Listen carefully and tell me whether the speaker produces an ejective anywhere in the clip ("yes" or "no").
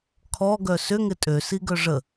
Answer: yes